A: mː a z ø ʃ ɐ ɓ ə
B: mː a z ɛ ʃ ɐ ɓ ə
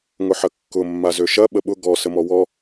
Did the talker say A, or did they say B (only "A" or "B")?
A